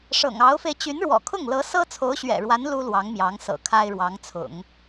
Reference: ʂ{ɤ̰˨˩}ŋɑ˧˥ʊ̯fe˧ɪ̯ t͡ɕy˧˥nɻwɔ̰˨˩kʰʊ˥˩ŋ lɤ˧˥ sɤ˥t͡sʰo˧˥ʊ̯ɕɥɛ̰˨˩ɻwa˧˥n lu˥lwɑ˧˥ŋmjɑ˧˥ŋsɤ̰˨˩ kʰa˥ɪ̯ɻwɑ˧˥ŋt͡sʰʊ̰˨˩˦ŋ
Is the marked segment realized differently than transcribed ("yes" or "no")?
no